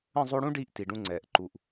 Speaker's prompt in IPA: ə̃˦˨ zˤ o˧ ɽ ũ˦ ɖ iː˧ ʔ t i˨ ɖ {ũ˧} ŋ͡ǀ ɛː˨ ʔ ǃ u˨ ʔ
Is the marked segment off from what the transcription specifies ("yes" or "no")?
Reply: no